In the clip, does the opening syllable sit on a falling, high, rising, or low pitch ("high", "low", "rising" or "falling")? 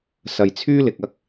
low